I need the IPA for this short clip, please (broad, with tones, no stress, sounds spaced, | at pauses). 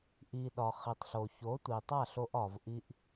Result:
ʔ i˨ ɗ ɒ˨ χ i˨ tˤ ɬ o˨ ç o˨˦ tʷ i˨ tˤ a˦˨ ɬ o˧ ʔ ɒ˨ v ʔ i˧ ʔ